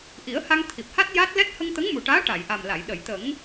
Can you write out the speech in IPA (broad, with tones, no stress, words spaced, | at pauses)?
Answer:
ʔi˨˩˦ə̯ha˧ŋ t̪ʰi˨˩p̚ha˦˥t̚ ja˦˥t̚ lɛ˦˥t̚ hə˧ŋt̪ə˧˥ŋmu˨˩ʈaː˧˥ ʈa˨˩˨jʔa˨˩mla˨˩˨j ɗə˨˩˨jt̪ə˨˩˦ŋ